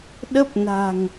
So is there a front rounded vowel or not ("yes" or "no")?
no